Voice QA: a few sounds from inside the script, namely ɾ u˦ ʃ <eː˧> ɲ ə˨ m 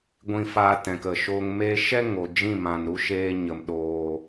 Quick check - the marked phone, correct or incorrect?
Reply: correct